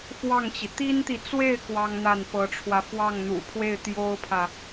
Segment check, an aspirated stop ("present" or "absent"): present